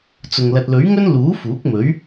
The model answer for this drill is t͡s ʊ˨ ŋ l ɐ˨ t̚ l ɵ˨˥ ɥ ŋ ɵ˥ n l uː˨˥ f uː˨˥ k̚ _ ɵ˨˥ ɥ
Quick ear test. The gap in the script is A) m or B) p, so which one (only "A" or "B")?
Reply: A